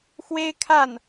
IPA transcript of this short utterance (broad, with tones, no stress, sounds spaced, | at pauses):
x w e˥ ɪ̯ kʰ a˥˩ n